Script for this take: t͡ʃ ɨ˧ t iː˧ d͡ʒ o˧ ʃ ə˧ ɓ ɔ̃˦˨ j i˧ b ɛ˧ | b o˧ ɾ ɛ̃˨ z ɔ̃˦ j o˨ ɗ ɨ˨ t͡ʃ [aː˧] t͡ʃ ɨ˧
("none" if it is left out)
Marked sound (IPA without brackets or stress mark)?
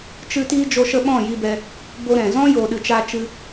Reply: aː˧